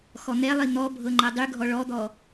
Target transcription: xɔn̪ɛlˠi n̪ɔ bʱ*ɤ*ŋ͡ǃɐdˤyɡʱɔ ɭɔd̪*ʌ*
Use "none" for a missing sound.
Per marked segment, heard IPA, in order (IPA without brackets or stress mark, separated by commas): ɤ, ɔ